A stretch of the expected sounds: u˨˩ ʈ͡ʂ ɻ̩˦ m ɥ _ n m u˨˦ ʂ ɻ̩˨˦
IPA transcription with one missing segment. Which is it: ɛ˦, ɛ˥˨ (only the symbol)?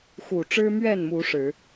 ɛ˥˨